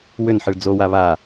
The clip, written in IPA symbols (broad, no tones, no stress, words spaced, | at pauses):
wʏnħɨɭ d͡zowa βa